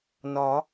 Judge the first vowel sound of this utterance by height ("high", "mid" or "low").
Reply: low